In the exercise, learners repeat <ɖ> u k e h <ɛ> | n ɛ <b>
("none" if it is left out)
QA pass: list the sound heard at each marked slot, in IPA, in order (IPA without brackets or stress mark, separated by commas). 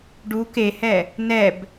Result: ɖ, ɛ, b